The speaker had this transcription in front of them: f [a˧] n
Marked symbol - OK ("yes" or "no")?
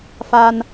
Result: yes